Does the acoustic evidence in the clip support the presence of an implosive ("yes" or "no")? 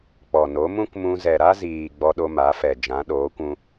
yes